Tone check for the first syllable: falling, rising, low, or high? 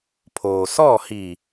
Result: low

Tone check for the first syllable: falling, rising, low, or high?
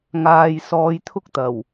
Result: low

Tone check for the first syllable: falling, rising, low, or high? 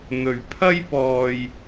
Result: low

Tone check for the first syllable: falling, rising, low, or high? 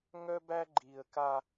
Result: high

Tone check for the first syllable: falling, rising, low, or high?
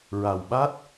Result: low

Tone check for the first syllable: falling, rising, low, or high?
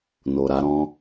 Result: low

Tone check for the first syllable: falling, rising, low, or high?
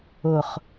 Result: low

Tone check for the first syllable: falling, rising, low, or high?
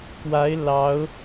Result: rising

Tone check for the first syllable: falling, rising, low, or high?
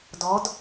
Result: rising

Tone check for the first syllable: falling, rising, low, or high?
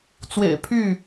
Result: low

